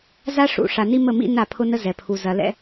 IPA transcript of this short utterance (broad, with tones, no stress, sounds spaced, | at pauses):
z a˦ ʂ ṵ˨ ʂ a˨ n i˦ m ə˦˨ m ḭ˦ n a˦˨ pʰ ʊ˦ n ə˦ z ɛ˨ pʰ u˨ z ɐ˨ l ɛ̰˦